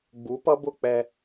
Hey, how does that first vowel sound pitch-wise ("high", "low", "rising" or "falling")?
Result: rising